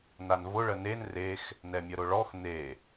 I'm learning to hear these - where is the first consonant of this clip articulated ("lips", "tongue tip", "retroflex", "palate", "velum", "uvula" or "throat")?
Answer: tongue tip